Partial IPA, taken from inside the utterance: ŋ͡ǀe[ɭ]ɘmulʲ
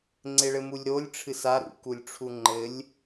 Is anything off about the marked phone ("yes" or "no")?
no